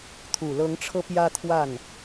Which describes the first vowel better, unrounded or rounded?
rounded